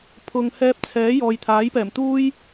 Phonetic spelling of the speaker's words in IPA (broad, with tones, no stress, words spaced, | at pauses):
pʰʊ˨ŋ hɛː˧p̚t͡sʰɛː˨˥ jɔː˨jt̪ʰaː˨˥jpɛː˨˩mt̪uː˥j